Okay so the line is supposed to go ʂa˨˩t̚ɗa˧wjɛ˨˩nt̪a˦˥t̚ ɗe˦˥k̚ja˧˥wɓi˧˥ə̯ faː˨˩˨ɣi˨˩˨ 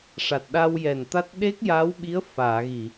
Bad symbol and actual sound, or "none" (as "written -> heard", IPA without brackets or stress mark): none